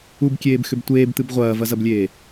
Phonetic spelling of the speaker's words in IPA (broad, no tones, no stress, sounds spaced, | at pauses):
u b kʲ eː b x ʏ b tʷ eː b t̪ ɨ b ʁʷ ɐː v ɐ z ɐ b lʲ eː